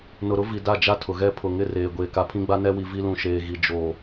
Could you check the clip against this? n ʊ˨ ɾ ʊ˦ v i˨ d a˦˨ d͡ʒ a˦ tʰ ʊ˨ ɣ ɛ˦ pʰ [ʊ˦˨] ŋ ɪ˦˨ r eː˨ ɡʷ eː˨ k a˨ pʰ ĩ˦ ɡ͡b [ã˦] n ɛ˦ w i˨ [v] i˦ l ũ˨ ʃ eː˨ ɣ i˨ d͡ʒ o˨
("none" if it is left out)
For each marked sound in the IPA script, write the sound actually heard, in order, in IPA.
ʊ˨, a˦, v

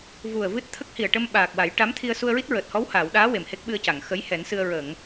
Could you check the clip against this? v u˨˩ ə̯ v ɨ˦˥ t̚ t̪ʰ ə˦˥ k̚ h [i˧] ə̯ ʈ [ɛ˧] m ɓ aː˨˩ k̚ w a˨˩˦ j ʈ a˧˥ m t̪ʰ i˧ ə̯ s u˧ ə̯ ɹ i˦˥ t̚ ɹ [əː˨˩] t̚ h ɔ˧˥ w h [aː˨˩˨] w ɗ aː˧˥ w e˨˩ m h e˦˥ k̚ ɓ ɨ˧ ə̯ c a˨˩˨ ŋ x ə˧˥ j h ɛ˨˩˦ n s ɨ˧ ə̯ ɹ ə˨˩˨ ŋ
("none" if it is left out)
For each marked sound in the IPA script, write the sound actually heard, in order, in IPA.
i˨˩, ə˧, əː˨˩, aː˨˩˨

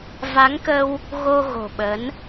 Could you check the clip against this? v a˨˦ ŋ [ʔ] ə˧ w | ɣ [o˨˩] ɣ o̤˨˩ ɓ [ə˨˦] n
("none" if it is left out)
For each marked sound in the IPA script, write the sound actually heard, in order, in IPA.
k, o˧, ə˨˦

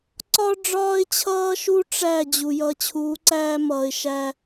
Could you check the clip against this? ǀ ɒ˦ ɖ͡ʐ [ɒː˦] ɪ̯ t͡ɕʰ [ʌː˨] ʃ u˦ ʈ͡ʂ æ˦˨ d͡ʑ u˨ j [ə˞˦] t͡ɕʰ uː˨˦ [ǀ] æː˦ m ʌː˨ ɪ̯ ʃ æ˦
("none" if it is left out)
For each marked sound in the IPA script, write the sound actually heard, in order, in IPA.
ɒː˦, ʌː˦, ʌ˦, ǀ

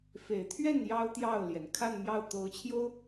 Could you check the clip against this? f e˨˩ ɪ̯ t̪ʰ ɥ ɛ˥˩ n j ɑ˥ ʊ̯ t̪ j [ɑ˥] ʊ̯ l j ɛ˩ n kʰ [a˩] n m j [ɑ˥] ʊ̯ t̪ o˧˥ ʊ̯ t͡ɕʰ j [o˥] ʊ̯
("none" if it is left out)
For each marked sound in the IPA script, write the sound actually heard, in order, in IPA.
ɑ˥˩, a˥˧, ɑ˥˩, o˥

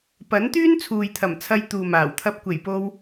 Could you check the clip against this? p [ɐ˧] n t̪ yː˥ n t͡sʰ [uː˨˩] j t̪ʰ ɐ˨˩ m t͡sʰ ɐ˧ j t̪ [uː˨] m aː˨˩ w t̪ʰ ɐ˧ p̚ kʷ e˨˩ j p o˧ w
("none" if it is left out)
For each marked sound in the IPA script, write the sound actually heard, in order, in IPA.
ɐ˨˥, uː˨, uː˨

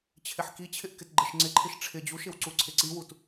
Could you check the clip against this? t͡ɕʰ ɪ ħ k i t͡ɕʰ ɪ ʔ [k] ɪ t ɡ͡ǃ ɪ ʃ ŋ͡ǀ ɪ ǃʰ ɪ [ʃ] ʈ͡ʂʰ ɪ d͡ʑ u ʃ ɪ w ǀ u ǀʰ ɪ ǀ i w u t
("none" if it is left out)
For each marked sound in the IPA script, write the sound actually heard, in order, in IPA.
k, ʃ

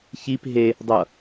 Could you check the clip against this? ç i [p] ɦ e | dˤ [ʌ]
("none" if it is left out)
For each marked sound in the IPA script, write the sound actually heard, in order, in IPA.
p, ʌ

